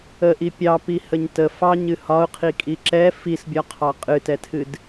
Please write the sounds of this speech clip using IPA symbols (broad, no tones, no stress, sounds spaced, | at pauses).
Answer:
ə ʔ i pʲ ɑ p i h ə ɲ t ə f ɑ ɲ ɨ h ɒ ʊ̯ qʰ i kʼ i ǁ ɛ f i s bʲ ɒ qʰ ɑ qʼ ɨ t ɛ tʰ ɨ d